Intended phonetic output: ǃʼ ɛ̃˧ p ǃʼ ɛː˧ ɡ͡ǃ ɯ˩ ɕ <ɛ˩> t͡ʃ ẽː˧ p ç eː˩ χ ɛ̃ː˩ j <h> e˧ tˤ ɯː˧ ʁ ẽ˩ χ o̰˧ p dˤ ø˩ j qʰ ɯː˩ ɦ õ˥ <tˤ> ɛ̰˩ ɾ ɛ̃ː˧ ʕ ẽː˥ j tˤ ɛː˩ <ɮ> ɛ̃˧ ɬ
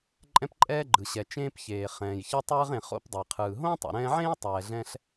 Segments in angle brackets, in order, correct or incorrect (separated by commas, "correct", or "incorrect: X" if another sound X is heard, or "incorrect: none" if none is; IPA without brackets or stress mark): correct, incorrect: ç, correct, correct